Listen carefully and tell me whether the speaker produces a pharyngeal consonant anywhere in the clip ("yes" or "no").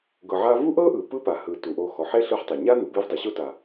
yes